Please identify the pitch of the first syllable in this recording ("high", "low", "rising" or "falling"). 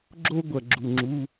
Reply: high